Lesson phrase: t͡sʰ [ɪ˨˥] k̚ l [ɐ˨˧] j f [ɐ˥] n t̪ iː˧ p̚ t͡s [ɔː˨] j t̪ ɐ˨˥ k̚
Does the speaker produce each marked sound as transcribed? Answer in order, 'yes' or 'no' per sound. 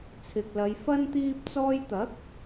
no, yes, yes, no

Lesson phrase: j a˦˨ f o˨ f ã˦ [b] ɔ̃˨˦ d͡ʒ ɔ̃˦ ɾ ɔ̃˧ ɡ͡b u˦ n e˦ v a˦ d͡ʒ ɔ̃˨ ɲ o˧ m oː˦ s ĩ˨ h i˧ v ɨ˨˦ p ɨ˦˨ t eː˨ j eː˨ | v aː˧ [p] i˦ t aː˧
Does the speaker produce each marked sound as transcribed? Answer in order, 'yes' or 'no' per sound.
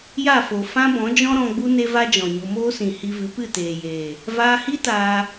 yes, no

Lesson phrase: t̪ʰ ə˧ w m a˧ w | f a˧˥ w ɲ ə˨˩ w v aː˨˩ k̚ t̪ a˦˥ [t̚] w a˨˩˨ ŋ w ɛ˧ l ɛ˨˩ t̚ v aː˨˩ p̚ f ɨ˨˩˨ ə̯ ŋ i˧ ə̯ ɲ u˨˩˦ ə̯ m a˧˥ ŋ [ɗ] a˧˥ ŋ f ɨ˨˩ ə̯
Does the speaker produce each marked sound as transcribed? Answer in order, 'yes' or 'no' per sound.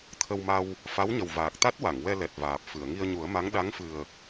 yes, yes

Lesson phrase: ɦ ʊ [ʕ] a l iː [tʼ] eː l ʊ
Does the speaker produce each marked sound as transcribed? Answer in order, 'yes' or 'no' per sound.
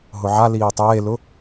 yes, no

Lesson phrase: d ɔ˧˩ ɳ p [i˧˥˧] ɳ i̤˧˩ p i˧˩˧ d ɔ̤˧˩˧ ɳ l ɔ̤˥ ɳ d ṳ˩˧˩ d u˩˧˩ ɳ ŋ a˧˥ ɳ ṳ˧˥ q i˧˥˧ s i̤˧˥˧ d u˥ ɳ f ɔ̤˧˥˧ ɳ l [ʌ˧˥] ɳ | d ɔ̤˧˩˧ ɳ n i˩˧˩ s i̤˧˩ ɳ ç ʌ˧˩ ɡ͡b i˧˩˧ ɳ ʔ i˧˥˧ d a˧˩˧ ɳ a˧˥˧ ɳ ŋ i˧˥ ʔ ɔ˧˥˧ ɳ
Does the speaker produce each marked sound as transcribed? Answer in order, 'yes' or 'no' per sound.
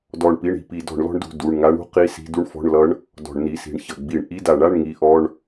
yes, yes

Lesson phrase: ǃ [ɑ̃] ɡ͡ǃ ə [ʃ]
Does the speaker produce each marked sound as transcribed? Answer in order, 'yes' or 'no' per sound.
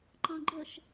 yes, yes

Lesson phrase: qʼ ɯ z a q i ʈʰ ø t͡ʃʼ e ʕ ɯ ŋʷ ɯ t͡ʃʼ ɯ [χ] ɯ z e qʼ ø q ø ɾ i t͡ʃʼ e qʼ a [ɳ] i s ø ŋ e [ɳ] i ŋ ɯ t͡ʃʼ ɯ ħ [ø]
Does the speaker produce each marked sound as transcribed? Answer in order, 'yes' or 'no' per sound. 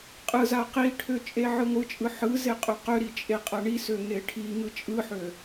no, yes, no, yes

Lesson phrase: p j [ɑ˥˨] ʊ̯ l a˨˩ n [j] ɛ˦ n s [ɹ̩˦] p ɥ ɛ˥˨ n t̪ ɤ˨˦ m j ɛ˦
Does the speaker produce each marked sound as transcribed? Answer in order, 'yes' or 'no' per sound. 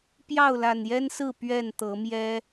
yes, yes, no

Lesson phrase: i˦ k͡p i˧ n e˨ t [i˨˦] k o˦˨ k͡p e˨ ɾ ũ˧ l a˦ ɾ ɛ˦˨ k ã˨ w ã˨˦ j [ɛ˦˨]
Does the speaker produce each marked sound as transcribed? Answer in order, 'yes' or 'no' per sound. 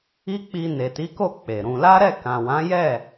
yes, yes

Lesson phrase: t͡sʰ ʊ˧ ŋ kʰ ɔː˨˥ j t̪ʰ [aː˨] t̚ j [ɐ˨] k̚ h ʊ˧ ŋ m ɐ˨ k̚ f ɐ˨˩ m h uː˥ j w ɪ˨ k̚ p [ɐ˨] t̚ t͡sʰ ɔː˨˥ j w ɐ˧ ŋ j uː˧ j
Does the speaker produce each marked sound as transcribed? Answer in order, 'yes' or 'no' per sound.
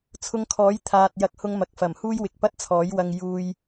yes, no, no

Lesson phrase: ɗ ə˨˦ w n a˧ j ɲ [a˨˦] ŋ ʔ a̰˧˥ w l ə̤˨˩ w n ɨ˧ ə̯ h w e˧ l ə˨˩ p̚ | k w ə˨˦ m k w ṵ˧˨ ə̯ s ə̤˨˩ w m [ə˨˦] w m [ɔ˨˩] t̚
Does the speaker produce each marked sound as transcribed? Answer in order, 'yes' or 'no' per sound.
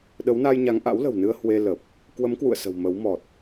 yes, yes, yes

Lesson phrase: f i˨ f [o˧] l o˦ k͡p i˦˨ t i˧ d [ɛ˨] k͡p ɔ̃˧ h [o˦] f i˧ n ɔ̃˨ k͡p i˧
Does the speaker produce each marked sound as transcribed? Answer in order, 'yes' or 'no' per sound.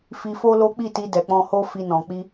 yes, yes, yes

